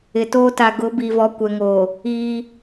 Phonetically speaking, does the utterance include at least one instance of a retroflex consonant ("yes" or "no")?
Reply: no